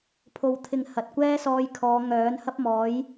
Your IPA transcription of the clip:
pʰ o˧ w t̪ʰ ɪ˧ ŋ h ɐ˨ t̚ kʷ ɛː˥ s ɔː˧ j kʰ ɔː˨˧ ŋ œː˨˥ n h ɐ˥ p̚ m ɔː˨˥ j

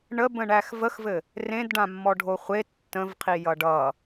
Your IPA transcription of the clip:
ɳ ə b ə̃ ɳ æ x v ə x v ɘ | r ẽ d ɖ ã mː ɔ ɖʱ o χʷ e tː ə̃ v qʰ i j ʌ ɖ ʌ

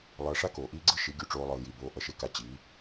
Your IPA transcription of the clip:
lˠ ʌː˧ ʂ a˦ k oː˨ ʔ iː˦ ɡ͡ǀ ɯ˦ ʃ i˨˦ ɡʲ u˧ ʈ͡ʂ oː˧ lˠ ɯː˨ j i˨ b oː˧ ʔ ʌ˧ ʃ e˧ k a˧ t͡ɕ i˨˦

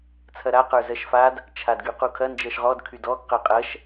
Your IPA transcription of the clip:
t͡sʰ ɐ ɾ a q ə˞ z ɜ ʃ f a d | t͡ʃʰ a d ɡ y q u kʰ ɐ n d͡ʒ ɜ ʃ ʁ ɔ d kʰ y d ɔ ɡ q ɜ qʼ ɐ ʃ

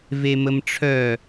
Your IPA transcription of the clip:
v e m ə m ʈ͡ʂʰ œ

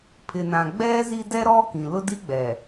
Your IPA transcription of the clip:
pʰ ɪ˨ n ã˨ ɡ͡b ɛ˦ z i˦ d ɛ˦ ɾ ɔ˦ k ĩ˨ l ʊ˦ d i˦ ɡ͡b ɛ˨

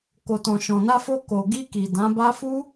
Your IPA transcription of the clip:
k o˨ t ɔ̃˨ ʃ ɔ̃˨ n a˧ f o˧ k o˨ ɡ i˧ k i˨ d ã˨˦ b a˦ f u˦

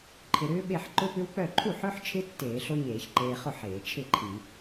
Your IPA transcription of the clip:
ǃʰ ɪ˧ ɾ ʏː˦˥ ɓ e˥˨ ħ ǃ ʊ˦˥ p ʏ˦˥ w k͡p œ˥˨ ǃʰ u˥˨ ħ œ˦˥ ħ t͡ʃʰ ɪ˦˥ tː eː˧˩˧ ɬ o˦˥ ɲ eː˧˩˧ ç ǃ eː˧ χ ʊ˥˨ ħ eː˧˩˧ t͡ʃʰ ɪ˥˨ ǃʰ i˧˩˧

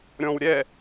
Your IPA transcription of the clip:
ɾʲ ɔ̃ w ɾʲ ɛ

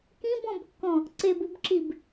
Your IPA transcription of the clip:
k ĩ b ɔ̃ b kː ɔ̃ | ǀ e b u b ǁ i b

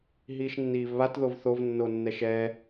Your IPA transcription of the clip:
ɦ iː ʃ nː iː v β a t ð o v θ o v nː o nː ɛ ʃ ɛ

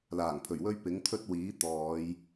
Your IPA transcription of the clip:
l aː˨˩ ŋ pʰ ɵ˨˩ ɥ w ɵ˥ ɥ p ɪ˨˥ ŋ t̪ʰ ɵ˥ t̚ w iː˨˥ t̪ ɔː˨˧ j

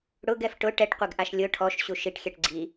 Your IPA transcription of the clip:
ɽ ʊ ɡ ɛ f ʈ ʊ ʈ ɛ ʈ qʷ ɛ ɡ ʔ a ʃ lʲ ʊ ʈʰ ɔ ʃ ɕ u ʃ i ʈ xʲ ɛ ʈ ɡ͡ǀ i

